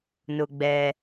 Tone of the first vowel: high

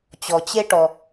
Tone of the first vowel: low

